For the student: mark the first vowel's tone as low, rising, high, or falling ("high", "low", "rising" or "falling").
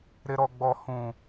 high